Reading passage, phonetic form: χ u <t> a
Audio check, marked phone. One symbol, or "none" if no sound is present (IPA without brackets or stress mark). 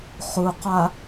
q